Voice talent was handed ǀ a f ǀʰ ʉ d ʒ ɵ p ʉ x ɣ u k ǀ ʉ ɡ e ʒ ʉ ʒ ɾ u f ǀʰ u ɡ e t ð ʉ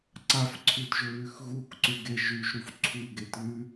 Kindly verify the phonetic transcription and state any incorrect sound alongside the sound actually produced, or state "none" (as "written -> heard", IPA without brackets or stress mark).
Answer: p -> β